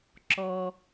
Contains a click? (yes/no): yes